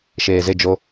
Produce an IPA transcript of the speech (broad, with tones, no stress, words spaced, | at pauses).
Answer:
ʃeː˨ze˦˨d͡ʒo˦